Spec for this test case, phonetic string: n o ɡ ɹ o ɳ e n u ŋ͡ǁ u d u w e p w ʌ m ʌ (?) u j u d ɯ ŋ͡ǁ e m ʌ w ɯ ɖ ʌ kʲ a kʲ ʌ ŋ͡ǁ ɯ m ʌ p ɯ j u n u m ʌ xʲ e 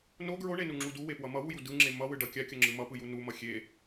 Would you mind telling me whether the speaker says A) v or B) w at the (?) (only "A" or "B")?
B